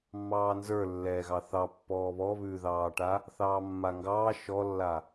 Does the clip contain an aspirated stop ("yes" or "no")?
no